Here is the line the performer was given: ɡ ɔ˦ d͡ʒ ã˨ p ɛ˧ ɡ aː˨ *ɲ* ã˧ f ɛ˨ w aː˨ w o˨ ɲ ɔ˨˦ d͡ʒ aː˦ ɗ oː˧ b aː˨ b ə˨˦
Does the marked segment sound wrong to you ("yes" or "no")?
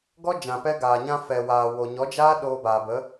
no